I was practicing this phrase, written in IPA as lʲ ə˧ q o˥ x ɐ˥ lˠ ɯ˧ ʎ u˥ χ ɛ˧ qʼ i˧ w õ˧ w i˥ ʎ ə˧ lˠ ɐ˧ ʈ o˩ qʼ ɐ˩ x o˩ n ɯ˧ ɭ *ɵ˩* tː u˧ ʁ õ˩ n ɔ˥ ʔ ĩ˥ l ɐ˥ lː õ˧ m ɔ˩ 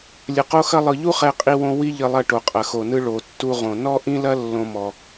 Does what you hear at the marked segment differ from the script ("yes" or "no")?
yes